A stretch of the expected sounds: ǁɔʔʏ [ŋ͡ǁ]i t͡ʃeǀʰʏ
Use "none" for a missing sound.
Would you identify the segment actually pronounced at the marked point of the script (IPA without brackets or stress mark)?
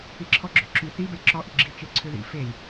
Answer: ɡ͡ǁ